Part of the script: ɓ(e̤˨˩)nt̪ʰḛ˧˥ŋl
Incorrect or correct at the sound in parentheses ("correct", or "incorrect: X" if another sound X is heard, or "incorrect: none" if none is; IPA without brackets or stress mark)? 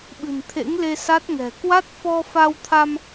incorrect: ɨ̤˨˩